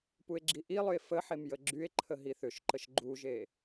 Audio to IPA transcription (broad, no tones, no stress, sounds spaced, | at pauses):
p u e̯ ɡ͡ǁ i ʔ i lˠ ʏ e̯ f ə ħ e m j ə ɡ͡ǁ y e̯ ǃʰ ə ɦ i θ ʏ ʃ ǃ ə ʃ ɡ͡ǃ u ʒ e